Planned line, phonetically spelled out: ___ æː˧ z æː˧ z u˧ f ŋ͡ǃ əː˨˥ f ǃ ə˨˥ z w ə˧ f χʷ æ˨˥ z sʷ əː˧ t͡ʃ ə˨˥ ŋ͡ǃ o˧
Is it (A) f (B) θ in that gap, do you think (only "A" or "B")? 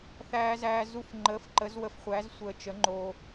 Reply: B